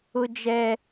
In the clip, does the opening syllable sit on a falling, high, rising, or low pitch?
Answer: high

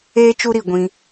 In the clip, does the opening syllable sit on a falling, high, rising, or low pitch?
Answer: high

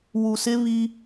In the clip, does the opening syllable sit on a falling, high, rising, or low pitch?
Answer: low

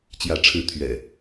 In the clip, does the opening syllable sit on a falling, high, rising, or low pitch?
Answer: rising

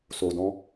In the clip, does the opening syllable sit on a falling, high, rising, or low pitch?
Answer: low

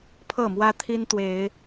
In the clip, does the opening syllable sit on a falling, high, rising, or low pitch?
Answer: falling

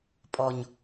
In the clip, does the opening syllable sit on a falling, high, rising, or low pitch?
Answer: low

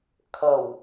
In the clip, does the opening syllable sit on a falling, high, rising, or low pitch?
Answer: low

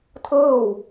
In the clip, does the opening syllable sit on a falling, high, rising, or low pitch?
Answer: falling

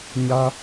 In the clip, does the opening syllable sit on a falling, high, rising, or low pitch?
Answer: high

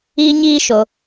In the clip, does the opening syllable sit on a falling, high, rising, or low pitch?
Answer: high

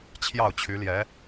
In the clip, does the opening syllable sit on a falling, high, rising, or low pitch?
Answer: falling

